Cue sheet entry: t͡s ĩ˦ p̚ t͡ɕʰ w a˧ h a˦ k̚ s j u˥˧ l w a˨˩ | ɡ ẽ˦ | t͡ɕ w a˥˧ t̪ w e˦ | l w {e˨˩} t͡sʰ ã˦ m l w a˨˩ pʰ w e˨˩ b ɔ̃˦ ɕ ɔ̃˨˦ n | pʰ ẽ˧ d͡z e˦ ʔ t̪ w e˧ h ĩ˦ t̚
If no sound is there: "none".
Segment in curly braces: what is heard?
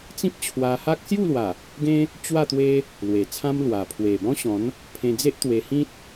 e˨˩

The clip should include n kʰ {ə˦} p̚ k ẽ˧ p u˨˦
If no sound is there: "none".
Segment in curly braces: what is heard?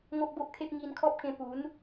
ɔ˦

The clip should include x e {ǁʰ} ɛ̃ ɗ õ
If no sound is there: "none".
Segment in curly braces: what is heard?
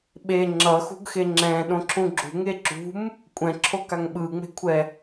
ŋ͡ǁ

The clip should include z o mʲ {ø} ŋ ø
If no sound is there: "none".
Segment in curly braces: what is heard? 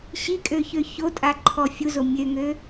ø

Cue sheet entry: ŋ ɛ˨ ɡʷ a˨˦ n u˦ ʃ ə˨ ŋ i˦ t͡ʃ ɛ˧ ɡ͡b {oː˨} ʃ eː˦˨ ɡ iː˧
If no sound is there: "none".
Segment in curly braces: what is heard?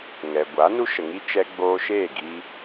oː˧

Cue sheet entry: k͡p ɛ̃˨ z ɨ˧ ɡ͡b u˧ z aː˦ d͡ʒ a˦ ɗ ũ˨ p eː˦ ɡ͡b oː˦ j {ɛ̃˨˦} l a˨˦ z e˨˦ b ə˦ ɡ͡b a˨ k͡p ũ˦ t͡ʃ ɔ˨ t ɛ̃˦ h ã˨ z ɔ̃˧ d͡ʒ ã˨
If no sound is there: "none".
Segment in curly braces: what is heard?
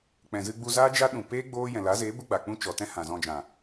ɛ̃˨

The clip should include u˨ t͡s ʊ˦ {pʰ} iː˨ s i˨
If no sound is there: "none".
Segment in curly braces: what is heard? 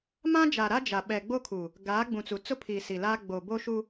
pʰ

